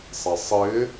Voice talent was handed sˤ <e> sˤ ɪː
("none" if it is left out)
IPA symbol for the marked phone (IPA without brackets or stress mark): ɛ